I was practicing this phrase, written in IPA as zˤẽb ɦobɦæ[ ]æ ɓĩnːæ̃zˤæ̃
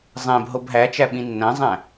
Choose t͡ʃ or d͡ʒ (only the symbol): t͡ʃ